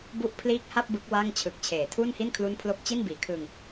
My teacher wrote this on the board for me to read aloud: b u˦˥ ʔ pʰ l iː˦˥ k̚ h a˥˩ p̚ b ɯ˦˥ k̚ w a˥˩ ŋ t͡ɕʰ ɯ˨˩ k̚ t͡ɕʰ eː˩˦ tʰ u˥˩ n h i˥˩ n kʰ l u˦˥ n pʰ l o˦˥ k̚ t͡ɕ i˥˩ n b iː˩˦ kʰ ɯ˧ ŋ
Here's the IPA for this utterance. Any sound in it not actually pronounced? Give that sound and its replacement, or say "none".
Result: none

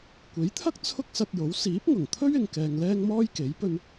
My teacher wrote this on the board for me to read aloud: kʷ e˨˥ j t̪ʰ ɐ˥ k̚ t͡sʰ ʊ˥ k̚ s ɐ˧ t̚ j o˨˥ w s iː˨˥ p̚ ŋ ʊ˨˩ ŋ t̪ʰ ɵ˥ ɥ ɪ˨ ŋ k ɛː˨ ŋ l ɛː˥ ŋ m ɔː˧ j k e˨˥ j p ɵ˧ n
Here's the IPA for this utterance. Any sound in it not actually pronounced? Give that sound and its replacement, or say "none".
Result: ɔː˧ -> ɔː˥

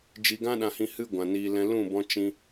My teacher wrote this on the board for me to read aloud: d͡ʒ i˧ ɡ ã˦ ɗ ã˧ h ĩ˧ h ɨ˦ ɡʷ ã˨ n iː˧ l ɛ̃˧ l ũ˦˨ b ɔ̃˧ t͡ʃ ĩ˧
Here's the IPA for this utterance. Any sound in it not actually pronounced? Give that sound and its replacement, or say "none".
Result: none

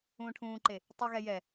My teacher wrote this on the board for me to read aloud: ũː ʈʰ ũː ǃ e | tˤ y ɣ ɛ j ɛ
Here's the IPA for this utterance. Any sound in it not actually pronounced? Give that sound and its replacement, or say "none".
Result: none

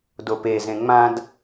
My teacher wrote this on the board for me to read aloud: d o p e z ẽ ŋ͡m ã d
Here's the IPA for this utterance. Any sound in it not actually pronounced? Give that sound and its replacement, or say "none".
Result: none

